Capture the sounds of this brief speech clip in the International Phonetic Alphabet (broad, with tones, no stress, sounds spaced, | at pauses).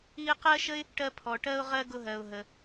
i˦ ə̯ q ɜ˥ ʃ ə˥ ɪ̯ | ʈ ɜ˦ pʰ ɔ˨ ʈ ɜ˥ ʊ̯ ʁ ɜ˥ ɡ ʊ˦ ɦ ɜ˨ ʊ̯ ɦ ə˨